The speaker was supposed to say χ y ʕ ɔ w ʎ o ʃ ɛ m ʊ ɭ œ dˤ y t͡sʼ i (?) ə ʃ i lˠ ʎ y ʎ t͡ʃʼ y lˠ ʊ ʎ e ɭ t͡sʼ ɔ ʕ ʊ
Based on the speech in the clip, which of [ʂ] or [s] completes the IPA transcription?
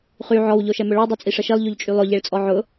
ʂ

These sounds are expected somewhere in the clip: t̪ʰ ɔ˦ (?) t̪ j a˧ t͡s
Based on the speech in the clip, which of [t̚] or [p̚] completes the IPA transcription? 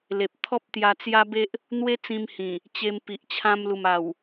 p̚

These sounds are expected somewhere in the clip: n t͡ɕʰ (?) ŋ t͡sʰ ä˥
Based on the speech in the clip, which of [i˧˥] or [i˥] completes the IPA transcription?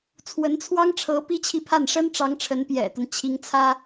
i˧˥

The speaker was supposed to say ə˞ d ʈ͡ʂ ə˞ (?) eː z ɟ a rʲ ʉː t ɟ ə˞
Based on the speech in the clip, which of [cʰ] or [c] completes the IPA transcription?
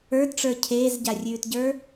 cʰ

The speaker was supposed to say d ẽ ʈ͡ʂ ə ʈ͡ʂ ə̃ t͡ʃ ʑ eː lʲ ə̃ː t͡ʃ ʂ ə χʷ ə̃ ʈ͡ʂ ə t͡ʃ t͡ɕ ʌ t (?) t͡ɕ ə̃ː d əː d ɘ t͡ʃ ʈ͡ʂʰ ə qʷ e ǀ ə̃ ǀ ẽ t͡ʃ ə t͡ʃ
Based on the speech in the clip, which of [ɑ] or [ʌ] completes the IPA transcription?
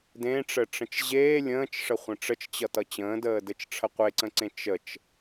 ʌ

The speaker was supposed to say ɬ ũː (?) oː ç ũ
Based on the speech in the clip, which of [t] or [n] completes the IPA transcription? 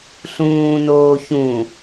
n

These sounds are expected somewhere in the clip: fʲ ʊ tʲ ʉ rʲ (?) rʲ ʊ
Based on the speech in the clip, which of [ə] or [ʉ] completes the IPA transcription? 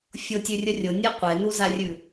ə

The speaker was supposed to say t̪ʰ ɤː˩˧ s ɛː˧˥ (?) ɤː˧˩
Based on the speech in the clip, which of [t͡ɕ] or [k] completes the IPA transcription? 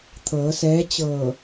t͡ɕ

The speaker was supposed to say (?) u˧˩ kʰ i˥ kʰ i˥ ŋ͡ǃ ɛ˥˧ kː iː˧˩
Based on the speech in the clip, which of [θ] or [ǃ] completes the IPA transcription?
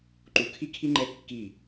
ǃ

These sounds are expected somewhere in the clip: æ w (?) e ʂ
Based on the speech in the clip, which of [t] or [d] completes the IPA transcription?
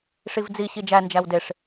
d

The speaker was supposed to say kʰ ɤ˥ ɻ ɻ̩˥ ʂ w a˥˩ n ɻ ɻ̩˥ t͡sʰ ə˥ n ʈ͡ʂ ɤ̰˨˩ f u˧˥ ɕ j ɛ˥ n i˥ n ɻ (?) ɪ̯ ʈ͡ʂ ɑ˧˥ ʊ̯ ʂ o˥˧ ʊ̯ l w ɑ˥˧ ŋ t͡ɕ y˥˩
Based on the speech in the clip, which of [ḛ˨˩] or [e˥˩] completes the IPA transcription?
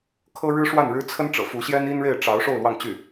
e˥˩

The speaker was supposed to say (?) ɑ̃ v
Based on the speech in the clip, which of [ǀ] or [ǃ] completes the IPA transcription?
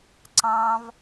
ǀ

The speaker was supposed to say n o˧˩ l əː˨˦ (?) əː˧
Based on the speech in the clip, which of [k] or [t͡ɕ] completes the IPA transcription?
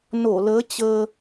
t͡ɕ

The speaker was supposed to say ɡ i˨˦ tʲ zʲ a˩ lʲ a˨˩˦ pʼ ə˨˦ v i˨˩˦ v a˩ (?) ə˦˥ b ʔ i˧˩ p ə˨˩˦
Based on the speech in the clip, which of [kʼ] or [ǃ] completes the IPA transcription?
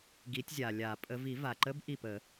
ǃ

